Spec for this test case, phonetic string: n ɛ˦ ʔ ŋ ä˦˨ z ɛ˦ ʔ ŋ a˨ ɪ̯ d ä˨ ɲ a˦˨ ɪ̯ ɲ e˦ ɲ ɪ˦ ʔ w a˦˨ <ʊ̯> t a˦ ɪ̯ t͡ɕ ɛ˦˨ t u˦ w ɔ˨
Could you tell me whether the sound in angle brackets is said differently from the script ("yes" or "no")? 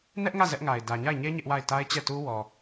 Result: yes